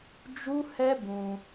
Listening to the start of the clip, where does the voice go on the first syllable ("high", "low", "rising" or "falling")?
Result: high